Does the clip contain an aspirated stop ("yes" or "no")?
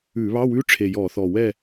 yes